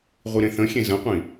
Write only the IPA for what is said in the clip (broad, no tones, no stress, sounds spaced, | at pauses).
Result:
ʁʷ i ɾ ẽ θ ə̃ xʲ ẽ z ə̃ qʷ ĩ